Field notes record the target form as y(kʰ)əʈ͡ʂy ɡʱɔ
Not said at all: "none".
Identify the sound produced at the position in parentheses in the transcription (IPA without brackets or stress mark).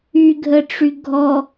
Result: ɡʱ